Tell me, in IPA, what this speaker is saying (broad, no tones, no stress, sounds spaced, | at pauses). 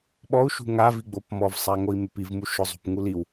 ɓ ɔ u̯ ʃ ṳ ŋ a v i ɡ͡b o p m ɔ v sˤ a ŋ o i̯ m ɪ p i v m u ʃ ʊ zˤ ṳ p ŋ u l i w